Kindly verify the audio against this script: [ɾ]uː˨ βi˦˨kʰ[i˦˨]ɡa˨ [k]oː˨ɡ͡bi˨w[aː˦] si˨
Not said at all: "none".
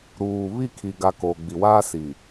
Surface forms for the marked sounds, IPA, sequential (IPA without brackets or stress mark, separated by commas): ɾ, i˨, k, aː˦